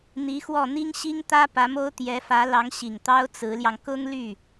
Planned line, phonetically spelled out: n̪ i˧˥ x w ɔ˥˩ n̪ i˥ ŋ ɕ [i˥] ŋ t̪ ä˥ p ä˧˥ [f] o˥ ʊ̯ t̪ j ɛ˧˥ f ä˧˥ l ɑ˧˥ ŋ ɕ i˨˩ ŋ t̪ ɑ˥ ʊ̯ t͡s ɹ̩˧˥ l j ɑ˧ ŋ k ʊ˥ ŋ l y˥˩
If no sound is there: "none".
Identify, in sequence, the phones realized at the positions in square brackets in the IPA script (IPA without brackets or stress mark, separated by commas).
i˥, m